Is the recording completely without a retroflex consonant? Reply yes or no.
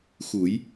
yes